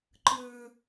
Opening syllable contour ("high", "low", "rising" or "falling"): low